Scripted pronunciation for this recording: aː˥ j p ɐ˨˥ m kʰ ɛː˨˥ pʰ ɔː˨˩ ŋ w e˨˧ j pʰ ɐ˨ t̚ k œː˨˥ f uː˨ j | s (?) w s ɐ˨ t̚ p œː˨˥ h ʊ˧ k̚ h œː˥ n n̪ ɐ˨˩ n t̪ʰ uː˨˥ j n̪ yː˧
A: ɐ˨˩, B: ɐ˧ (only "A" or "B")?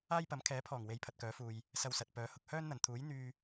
B